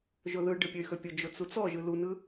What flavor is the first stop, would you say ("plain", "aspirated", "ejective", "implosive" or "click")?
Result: plain